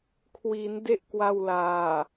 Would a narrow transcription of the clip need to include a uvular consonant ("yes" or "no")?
no